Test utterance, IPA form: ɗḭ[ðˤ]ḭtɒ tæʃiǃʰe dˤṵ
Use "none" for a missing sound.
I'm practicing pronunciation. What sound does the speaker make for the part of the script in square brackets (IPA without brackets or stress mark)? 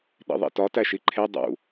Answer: ðˤ